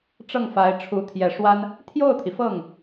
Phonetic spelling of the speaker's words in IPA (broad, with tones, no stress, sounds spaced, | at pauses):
ʈ͡ʂ ɤ˥˩ ŋ f a˧˥ ɪ̯ ʈ͡ʂʰ u˧˥ t̪ʰ j ɛ˨˩ ʂ w a˥ n | t̪ʰ j o˥˩ ʊ̯ t̪ʰ i˩ f ɤ˥˩ ŋ